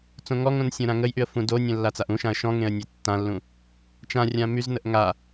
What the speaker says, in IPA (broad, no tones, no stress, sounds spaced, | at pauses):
t͡s õ ŋ ɔ ŋ õ n sʲ õ ɾ ã ŋ ə j ʔ y ə̯ f ũ d o nʲ ə̃ lː a t͡s a ʔ ũ ʃ ã ə̯ ʃ ɔ̃ ŋ ẽ ə̯ nʲ e tː ã lː ũ | t͡ʃ ã rʲ ã m y z n ə ʔ ŋ a